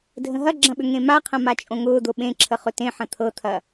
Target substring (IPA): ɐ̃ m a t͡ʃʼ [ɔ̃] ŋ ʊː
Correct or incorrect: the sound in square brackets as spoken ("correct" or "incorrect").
incorrect